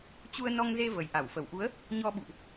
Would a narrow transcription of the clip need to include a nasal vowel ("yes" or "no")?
no